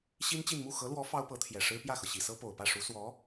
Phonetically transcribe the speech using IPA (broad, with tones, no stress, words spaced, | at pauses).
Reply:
ɕi˥nt͡ɕi˥˧n mu˥˩ xɤ˧˥lwɔ˧˥ fɑ˥ʊ̯pɤ˧˥t̪ʰjɛ˨˩ʂɻ̩˥ pjä˥˩xɤ˩ɕi˨˩sɤ˥ po˨˩ʊ̯pä˥˩ʂu˧˥ swɔ˧˥